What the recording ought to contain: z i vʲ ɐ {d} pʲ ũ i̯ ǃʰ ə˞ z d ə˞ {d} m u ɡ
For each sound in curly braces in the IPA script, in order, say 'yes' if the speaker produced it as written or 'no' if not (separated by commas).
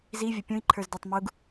no, no